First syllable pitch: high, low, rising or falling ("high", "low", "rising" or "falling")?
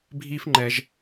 high